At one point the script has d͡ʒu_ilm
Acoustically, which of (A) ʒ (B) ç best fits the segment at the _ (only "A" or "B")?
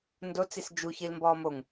B